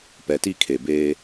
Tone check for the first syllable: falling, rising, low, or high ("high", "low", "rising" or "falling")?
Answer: low